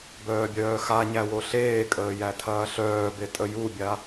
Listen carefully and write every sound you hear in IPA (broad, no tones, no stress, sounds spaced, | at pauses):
b œː bʲ œː x a ɲ æ w o ɬ eː kʼ əː j æ tʰ ɐː ɬ œː b e tʼ ə j u bʲ a